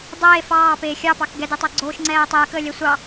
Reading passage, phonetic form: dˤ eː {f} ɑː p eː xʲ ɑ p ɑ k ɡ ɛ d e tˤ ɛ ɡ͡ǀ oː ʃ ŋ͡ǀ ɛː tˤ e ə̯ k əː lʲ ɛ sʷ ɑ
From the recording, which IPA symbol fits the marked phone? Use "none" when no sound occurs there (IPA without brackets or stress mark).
f